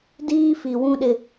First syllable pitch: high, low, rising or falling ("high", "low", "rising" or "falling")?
high